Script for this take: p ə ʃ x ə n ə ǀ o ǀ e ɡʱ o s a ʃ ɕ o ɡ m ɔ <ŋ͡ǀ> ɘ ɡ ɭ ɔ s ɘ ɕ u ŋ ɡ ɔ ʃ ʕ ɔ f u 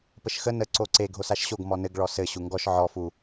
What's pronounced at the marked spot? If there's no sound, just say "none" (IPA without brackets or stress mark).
n